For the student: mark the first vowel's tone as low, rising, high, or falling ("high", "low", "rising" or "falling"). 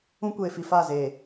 high